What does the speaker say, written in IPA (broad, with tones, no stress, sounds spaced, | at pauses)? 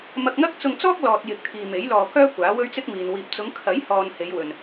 m ɐ˧ k̚ ŋ ɐ˥ k̚ t͡s ʊ˧ ŋ t͡s ɔː˥ k̚ l ɔː˧ t̚ j ɪ˨ k̚ t̪ʰ iː˨ m e˨˥ j l ɔː˧ k œː˥ kʷ aː˨˥ w ɵ˥ ɥ t͡s ɪ˥ k̚ m iː˨ n w iː˧ p̚ t͡s ʊ˨˧ ŋ kʰ ɐ˨˥ j h ɔː˨ n h e˨˧ j w ɵ˨ n